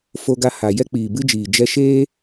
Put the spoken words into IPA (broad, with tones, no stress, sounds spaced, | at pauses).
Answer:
f o˧ ɡ a˧ h a˨ j ɛ˦ k͡p iː˨ b ɨ˦ d͡ʒ iː˨ d͡ʒ ɛ˧ ʃ eː˦